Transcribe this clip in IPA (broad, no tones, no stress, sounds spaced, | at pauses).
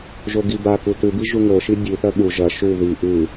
ʒ o ɡ i b a k u t ʉ b i ʒ u ŋ o ʃ i dʲ ʉ θ ɐ ɠ u ʒ ɐ ʃ u ð i ʔ ʉ